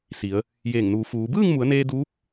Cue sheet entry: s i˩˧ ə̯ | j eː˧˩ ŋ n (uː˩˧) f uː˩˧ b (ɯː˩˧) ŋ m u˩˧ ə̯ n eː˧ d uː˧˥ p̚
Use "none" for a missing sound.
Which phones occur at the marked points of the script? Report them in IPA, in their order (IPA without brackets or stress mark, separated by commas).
uː˩˧, ɯː˥˨